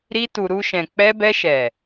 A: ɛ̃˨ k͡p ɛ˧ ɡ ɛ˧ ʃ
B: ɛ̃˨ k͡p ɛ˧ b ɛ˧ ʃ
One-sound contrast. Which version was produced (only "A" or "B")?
B